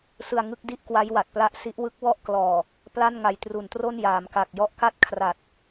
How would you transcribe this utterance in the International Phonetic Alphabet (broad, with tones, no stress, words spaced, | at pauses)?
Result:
sɯ˧a̯ŋɯ˦˥k̚di˥˩ʔkwa˦˥j wa˨˩t̚pla˦˥ʔsi˦˥ʔ wɯ˦˥k̚wɔ˥˩ʔklɔː˨˩ | pla˥˩n ŋa˧j tru˨˩ntro˥˩n jaː˩˦mka˨˩k̚jɔ˦˥ʔ ka˥˩t̚kʰra˨˩t̚